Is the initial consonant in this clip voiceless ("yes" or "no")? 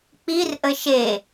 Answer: yes